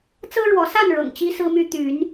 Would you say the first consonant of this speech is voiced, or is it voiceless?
voiceless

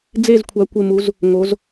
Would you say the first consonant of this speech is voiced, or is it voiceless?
voiced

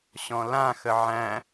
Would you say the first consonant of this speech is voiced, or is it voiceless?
voiceless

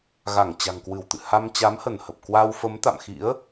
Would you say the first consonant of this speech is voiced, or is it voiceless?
voiced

